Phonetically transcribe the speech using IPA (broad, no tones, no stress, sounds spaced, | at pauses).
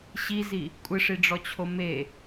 ɕ i z i | kʷʼ ɪ ʂ i ɖ͡ʐ ɔ t͡ɕʰ o m e